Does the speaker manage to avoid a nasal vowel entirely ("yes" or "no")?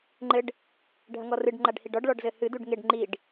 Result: yes